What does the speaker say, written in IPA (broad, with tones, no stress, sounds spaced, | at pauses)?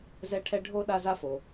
z ɛ˦ ʈʰ ɛ˦ ɖʱ o˥ ɗ a˦ z a˦ f o˩